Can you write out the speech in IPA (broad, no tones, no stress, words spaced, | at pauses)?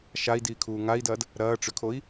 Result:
ʃai̯diːkʰuː ŋai̯dɐːd | ɾɐː ʈ͡ʂʏkʰoi̯